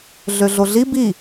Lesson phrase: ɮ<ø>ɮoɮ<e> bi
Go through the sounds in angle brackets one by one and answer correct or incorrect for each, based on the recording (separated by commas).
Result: correct, incorrect